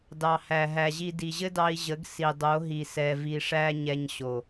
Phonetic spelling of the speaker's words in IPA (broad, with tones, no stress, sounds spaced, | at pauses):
d ɑ˨ h æ˨ ɦ æ˨ ʑ i˧ d i˨ ʑ ɘ˦ d ɑ˧ i̯ ʑ ə˨˦ ɡ s i˨ dˤ o˨˦ ɦ i˨ s ɛ˨ v i˨ ʂ æ˧ ɲ ɛ˧ ɲ ɕ o˨